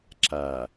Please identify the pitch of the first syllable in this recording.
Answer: low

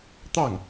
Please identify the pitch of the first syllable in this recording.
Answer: falling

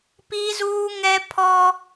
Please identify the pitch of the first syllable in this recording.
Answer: high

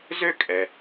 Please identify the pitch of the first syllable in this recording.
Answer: high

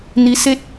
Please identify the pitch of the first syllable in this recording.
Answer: rising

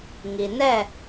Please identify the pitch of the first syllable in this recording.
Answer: low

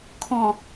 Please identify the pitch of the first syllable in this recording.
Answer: low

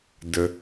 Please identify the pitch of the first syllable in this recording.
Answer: low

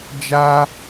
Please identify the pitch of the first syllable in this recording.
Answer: high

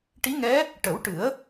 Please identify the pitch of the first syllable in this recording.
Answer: rising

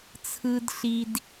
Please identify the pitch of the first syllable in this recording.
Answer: low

